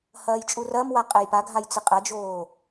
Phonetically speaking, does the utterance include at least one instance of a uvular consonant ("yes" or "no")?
yes